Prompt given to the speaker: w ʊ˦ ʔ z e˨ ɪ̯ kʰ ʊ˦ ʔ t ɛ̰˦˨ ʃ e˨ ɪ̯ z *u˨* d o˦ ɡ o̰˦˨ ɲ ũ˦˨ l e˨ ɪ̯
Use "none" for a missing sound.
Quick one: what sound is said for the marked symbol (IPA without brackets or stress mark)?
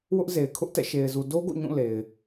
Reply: u˨